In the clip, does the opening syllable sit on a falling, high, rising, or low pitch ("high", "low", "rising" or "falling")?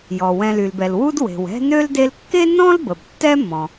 low